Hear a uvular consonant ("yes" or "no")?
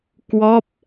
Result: no